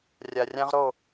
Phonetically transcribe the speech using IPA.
rʲ a˨ rʲ ã˦ ʁ ɾ o˦˨

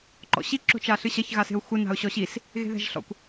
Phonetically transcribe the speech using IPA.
ǃ ɔ̰ ɕ i ǁ o̤ t͡ʃ a ɬ ɨ ɕ ɐ ç ɣ a s e̤ ʊ̯ xʷ ɘ n a̤ ʊ̯ ɕ ɔ ɕ i s | ɣ e̤ ð ɛ̤ ʒ ɬ ɔ̰ kʷ

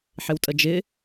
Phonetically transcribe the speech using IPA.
ħ ɪ w tʼ ə d͡ʒ ɪ

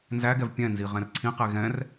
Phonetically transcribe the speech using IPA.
n z æ ɡ ɛ v pʲ ɛ̃ n z i ʁ ɛ̃ r ǀʰ ĩ q e ɣ ɛ̃ r

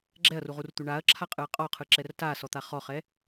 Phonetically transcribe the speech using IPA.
ɡ͡ǁ ɛ ɐ̯ r u ʁ u r t̪ u ɳ a ɐ̯ ǁʰ a qʼ ɯ ɐ̯ qʼ ɔ qʰ ɯ ǁ ɛ r t a s ɔ t̪ a χ ɔ χ ɛ

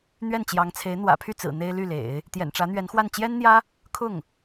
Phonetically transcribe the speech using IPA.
n̪ ɥ ɛ˥˩ n t͡ɕ j ɑ˧˥ ŋ t͡sʰ e˧˥ ɪ̯ n̪ w ä̰˨˩ pʰ y˥˩ t͡s ɹ̩˨˩ n̪ e˥ ɪ̯ l y˥˩ l ḛ˨˩˦ ɪ̯ | t̪ j ɛ̰˨˩ n ʈ͡ʂ ä˧˥ n̪ ɥ ɛ˧˥ n x w a˥˩ n t͡ɕ j ɛ˥ n n̪ j ä˥ | kʰ ʊ˥˩ ŋ

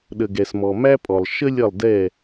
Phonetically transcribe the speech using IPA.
ɗ ə˨ ɡ ɛ˨ s m ɔ˨ m æ˥ pʼ ɔ˨ lˠ ʃ ə˥ lʲ ʌ˦˨ lˠ d ɛ˦˨

